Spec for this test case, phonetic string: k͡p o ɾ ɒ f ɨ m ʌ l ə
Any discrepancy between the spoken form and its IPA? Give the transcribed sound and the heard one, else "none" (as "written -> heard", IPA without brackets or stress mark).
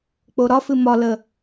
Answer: ʌ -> ɒ